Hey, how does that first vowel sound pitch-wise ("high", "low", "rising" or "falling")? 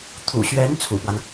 low